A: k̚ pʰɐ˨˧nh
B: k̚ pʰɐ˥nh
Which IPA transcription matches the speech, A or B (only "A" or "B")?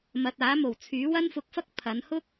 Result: A